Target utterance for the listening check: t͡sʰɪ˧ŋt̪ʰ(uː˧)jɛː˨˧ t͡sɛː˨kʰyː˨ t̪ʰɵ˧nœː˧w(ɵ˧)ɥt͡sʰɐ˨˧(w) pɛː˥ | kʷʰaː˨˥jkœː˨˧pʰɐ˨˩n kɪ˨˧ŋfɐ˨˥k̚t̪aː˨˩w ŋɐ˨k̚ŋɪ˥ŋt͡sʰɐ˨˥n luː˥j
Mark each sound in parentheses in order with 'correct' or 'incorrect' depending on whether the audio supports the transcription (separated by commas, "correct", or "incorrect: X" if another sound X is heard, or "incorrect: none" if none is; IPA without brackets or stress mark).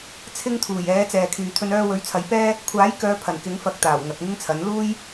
incorrect: uː˨˩, incorrect: ɵ˨˥, incorrect: j